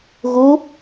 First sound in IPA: ɣ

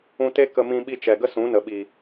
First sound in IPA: ũ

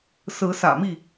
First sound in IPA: s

